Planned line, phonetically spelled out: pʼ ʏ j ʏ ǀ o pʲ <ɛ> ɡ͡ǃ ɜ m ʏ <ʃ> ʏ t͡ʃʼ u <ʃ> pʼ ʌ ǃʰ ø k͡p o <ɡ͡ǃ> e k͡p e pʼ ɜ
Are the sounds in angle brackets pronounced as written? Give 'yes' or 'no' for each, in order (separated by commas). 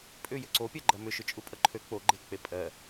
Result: no, yes, no, yes